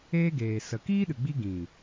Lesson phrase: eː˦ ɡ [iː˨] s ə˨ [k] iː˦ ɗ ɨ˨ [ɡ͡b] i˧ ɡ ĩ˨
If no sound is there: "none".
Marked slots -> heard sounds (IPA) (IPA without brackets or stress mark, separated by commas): eː˨, k, ɡ͡b